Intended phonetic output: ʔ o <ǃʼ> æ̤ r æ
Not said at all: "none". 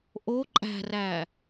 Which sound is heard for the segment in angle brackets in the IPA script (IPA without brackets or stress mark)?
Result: ǃʼ